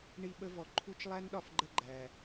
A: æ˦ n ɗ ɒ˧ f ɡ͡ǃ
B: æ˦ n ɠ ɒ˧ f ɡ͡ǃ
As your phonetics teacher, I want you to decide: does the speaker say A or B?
A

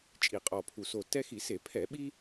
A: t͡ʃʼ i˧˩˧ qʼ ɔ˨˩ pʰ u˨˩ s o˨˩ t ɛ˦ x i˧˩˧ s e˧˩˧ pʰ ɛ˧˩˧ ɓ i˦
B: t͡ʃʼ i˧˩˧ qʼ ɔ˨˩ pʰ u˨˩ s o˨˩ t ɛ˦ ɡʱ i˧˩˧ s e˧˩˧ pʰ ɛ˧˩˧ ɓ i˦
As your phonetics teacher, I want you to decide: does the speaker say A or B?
A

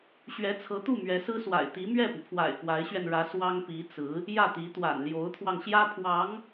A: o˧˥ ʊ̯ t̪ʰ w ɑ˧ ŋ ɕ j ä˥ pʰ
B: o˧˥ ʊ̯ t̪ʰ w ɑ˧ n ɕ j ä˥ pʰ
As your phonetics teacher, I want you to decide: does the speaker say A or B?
A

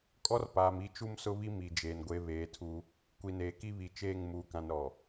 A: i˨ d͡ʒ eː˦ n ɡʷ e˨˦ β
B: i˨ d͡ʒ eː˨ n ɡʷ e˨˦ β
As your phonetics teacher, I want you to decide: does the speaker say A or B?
B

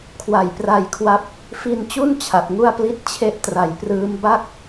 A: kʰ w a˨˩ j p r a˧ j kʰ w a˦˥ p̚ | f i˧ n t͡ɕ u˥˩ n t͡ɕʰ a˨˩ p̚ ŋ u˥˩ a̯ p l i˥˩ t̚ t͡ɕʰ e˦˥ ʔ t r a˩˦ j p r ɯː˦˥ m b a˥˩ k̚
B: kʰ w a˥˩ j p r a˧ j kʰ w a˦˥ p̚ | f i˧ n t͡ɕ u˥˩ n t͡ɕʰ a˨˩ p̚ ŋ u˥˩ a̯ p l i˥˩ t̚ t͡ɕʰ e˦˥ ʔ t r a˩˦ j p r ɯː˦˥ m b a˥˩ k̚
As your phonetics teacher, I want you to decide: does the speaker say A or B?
A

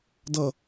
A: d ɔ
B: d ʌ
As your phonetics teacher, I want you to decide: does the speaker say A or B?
B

